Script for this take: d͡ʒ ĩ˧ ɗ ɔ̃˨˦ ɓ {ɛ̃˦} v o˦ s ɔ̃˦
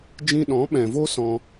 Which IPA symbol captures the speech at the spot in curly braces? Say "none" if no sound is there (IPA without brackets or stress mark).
ɛ̃˨